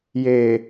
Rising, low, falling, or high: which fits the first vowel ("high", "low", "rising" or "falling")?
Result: low